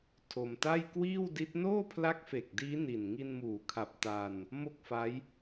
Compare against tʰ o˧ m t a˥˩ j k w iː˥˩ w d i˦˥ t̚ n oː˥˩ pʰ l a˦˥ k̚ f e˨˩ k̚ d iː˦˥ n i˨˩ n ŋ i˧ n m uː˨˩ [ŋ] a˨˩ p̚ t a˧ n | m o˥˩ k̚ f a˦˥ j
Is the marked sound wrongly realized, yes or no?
yes